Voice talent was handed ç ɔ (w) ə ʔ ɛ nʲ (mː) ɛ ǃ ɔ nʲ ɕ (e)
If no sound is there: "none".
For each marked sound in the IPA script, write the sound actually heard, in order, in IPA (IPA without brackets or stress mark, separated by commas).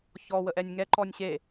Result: w, ŋ, e